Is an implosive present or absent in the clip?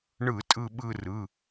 present